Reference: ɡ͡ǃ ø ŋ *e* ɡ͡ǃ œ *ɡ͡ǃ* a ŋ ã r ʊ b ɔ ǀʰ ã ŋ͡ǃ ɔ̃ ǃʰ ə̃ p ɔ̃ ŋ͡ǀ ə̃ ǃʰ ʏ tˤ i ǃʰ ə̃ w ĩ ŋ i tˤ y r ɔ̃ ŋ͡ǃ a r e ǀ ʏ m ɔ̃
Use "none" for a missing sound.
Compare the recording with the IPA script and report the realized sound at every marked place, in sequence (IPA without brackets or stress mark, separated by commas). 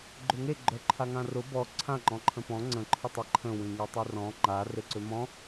e, ǃʰ